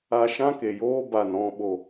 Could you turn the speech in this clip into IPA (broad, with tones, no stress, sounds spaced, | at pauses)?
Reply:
a˧ ʃ ã˦ k e˨ j oː˦ b a˨ n ɔ̃˧ ɓ o˧